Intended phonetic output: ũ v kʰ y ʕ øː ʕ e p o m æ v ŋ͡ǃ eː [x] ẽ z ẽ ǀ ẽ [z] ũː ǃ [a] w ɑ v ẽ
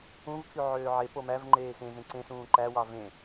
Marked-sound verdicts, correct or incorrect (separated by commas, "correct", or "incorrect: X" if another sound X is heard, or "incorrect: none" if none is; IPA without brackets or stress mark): correct, incorrect: s, incorrect: æ